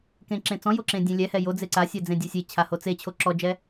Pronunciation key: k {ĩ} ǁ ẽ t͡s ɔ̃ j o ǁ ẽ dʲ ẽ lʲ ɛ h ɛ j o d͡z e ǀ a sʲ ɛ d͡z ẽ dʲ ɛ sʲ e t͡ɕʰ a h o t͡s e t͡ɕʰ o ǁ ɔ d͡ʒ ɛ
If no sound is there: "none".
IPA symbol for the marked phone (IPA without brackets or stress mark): ẽ